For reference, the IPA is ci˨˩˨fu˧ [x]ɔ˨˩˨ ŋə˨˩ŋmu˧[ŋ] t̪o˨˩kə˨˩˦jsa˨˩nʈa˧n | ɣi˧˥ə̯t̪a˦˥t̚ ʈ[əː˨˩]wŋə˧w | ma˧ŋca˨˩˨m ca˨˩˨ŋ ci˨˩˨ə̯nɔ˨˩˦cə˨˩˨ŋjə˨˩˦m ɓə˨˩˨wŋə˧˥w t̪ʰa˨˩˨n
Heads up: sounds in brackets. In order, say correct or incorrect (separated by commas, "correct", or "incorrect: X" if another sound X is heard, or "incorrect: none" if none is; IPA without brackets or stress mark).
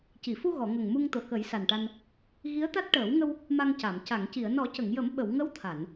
incorrect: ɣ, correct, incorrect: əː˨˩˦